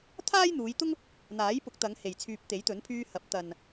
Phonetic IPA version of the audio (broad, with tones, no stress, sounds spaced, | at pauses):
t̪ʰ aː˥ j n̪ uː˨˧ j t̪ ʊ˥ ŋ | n̪ aː˨˥ j p ʊ˨˥ k̚ t̪ ɐ˨˧ ŋ h e˨ j t͡sʰ yː˧ p̚ t̪ e˨˥ j t̪ ɵ˨˥ n pʰ yː˧ h ɐ˨˥ p̚ t̪ ɐ˨ n